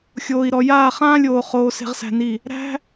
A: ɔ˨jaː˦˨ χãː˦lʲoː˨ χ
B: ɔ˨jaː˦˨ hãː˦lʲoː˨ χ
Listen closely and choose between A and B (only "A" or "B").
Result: A